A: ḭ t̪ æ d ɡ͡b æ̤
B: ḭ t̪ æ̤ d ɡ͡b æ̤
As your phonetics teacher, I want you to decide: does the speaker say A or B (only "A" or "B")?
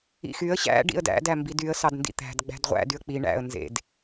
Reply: B